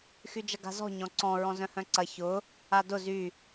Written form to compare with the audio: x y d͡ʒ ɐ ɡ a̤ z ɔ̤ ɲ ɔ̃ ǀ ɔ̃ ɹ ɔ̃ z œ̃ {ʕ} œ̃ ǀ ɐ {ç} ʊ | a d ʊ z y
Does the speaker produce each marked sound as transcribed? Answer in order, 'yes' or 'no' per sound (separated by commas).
no, yes